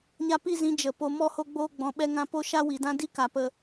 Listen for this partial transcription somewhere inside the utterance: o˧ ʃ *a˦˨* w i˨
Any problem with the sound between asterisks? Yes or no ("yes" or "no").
yes